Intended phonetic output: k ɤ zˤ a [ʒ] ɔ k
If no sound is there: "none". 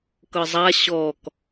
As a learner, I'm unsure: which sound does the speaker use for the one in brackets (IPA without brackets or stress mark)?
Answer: ɕ